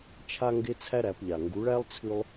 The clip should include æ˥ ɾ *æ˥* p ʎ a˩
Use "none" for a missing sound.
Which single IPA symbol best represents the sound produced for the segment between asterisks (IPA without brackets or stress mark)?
æ˩˧